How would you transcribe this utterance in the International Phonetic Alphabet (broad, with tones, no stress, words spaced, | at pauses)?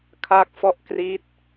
kʰa˥˩k̚fɔ˥˩ʔ kri˦˥t̚